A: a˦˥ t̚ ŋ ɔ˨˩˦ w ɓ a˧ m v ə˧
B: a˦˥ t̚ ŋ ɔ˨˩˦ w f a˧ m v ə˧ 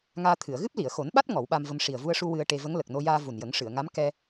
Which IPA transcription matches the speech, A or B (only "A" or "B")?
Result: A